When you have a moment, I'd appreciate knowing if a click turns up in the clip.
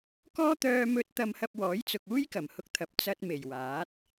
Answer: no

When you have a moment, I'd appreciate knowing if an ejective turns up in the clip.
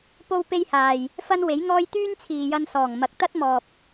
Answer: no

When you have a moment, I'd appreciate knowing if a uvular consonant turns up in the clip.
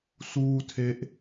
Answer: no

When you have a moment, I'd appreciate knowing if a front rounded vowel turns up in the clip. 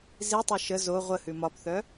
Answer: yes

